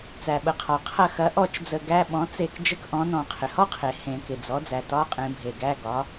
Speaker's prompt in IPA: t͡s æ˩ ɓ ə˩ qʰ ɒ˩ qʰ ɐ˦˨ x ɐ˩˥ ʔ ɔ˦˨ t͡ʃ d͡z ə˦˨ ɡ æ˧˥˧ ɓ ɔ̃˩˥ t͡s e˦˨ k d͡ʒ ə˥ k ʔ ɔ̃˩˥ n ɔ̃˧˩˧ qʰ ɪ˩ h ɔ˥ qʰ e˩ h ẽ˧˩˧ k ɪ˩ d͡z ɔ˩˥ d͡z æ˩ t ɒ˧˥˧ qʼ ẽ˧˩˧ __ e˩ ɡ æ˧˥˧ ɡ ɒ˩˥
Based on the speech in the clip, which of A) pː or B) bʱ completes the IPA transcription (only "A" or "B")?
B